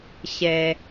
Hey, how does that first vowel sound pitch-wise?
low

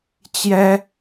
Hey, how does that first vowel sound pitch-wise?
high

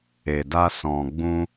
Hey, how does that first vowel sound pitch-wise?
low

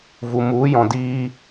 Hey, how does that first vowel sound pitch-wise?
low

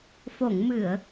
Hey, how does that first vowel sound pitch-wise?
low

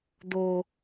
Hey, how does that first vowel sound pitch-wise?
high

